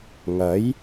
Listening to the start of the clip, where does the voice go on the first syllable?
rising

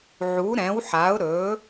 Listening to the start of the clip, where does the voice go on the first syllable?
rising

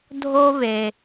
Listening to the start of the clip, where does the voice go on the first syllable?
high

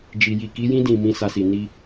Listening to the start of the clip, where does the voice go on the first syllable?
low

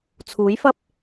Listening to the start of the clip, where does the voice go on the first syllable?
rising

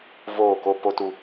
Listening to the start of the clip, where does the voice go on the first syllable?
falling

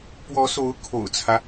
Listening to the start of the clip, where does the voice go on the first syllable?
rising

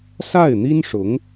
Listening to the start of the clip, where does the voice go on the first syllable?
falling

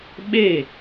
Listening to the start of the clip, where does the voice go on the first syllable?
falling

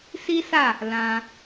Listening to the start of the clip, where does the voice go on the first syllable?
high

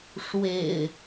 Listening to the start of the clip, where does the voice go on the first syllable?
low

